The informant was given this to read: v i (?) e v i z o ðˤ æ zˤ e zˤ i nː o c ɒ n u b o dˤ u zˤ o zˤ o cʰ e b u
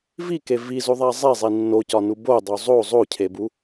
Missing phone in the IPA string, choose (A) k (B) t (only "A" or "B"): A